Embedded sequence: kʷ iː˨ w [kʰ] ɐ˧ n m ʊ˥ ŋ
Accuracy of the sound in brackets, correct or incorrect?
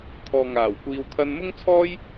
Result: correct